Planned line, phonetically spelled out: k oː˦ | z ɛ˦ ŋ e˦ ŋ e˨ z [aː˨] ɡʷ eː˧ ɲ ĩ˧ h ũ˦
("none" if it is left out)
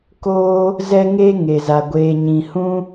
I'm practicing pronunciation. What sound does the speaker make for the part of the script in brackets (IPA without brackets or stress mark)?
a˨